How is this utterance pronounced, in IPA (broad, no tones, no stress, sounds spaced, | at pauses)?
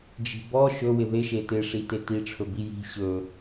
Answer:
d͡ʒ i̤ b ɔ ʃ ɵ w ɪ ð ɪ ʃ e t ɪ ʂ i t e t i ʈ͡ʂʰ ɵ b i j i̤ ɕ ɵ